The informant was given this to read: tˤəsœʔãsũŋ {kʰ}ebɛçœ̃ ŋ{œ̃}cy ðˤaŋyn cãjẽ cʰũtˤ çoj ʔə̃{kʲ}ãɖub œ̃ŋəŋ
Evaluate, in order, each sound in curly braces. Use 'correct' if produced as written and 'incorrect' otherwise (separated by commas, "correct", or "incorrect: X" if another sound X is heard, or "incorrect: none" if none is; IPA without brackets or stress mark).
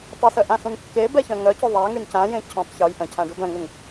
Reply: incorrect: kː, incorrect: œ, incorrect: cʰ